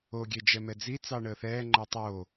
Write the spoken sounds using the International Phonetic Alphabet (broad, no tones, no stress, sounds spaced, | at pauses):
o ɡʲ e d͡ʒ ɛ m ɛ d͡z i t͡s ɑ ɳ əː θ ɛː ŋ͡ǃ ɜ tˤ oː